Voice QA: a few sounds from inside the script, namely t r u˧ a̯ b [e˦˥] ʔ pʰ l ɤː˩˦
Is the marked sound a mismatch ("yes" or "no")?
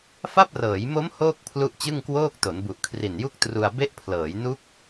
no